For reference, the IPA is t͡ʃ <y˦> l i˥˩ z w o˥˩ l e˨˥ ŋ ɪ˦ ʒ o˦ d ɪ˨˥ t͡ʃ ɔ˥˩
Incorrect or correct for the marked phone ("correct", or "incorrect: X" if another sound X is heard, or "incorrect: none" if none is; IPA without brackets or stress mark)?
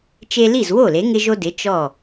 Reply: incorrect: e˦